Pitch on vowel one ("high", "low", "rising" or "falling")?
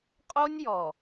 high